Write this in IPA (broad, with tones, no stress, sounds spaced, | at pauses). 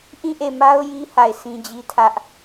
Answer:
ʔ ĩ˦˨ ʔ e˦˨ m a˦ ʊ̯ j i˦ h a˦˨ ɪ̯ sʰ ĩ˦ d͡ʑ i˦ tʰ ä˦ ʔ